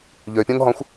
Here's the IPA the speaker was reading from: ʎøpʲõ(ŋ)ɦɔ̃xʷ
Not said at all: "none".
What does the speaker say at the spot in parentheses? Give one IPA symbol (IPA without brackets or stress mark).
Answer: ŋ